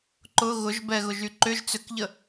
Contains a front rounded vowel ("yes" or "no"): yes